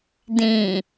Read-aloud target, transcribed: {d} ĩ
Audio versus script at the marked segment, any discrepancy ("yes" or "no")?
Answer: no